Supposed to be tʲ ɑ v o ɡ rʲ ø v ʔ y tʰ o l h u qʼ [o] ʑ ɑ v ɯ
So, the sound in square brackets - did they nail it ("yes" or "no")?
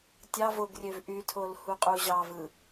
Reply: no